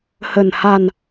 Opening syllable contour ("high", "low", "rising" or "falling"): low